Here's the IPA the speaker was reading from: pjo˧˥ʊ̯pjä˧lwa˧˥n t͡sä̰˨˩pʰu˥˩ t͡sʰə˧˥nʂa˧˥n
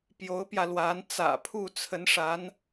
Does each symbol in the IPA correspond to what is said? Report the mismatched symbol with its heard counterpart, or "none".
none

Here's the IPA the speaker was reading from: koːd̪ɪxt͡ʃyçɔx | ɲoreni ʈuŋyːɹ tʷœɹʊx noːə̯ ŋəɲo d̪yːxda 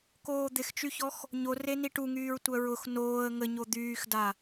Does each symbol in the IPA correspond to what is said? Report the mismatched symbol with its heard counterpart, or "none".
none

